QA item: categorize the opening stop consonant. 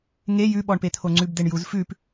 implosive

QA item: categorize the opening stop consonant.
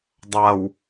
plain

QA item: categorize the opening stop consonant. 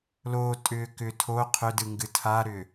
ejective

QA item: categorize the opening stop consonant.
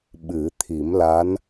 implosive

